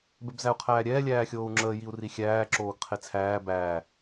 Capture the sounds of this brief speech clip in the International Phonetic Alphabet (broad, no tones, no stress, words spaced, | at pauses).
bɛbzæu̯qʰæːɾʲɛː lʲæːxʲoːu̯ŋ͡ǁəː jiu̯rixʲæː ǁoːɡqʰet͡sʰæː bæː